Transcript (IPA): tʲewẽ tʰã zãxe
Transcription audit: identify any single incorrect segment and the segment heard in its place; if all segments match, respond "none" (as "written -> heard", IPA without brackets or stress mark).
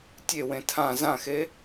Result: none